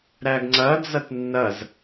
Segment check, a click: present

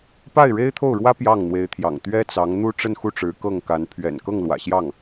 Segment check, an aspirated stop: present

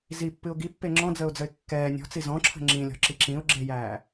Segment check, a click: present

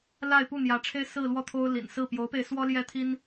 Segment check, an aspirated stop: present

